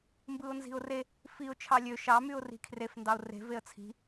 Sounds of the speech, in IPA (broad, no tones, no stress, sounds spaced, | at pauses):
m b ɯ ʊ̯ n z i̤ ʊ̯ r e | f i ʊ̯ t͡ʃʰ ɑ lʲ ø ʃ ɑ m y ʊ̯ r i̤ kʰ r e f n d ɑ ʊ̯ r e̤ v e ə̯ t͡sʰ i̤